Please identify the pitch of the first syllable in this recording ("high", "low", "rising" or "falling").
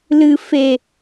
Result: low